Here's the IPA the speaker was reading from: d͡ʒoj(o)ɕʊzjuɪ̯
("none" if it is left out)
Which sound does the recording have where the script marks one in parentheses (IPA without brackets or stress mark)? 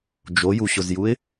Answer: u